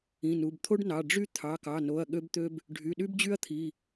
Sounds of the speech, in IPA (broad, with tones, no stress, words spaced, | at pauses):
ĩ˩˧˩nu˩˧˩bt̪ʰo˥ɖnɑ˩˧˩ ɖ͡ʐy˥ t̪ʰɑ˩˧˩kɑ˩˧˩no˩˧˩ɐ̯ ɠø˥bt̪ø˥b | ɖʱy˩˧˩ɗy˥bd͡ʑy˥ɐ̯t̪ʰi˩˧˩